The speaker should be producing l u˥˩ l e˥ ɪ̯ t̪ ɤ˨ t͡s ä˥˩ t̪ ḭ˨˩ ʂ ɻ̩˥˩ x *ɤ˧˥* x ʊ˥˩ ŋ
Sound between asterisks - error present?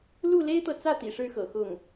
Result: yes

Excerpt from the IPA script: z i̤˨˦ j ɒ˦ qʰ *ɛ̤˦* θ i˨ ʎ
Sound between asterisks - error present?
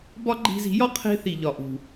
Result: yes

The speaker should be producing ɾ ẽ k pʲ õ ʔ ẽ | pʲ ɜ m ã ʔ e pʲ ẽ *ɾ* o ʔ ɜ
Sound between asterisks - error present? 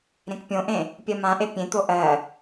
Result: yes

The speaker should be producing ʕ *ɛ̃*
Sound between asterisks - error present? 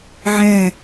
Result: no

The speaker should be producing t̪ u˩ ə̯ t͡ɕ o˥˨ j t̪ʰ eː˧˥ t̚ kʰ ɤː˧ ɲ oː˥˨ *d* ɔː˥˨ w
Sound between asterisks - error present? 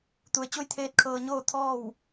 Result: yes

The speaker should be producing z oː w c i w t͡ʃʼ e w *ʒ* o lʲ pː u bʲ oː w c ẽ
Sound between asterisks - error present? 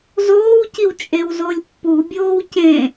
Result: yes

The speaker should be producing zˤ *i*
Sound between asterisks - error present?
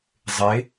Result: yes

